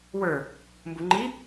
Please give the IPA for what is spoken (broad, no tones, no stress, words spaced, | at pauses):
wə˞ | mbuŋ͡ǃi